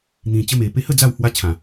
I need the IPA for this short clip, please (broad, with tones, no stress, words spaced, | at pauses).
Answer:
n̪ĩ˨˩ t͡ɕə˦me˨˩ pe˧hə˥˧ d͡za˥˧w hwa˦t͡ɕʰã˨˩